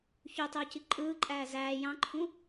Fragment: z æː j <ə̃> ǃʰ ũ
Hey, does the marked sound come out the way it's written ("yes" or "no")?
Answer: no